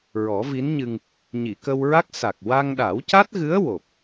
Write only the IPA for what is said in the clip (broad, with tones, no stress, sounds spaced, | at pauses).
ɹ ɔ˨˩˦ v i˧˥ n ɲ ɨ˧ ŋ | ɲ i˨˩˨ k ə˧ w ɹ a˦˥ k̚ s a˨˩ k̚ w a˧ ŋ ɗ a˨˩˦ w c a˦˥ t̚ ɣ ɨ˧˥ ə̯ w o˨˩ p̚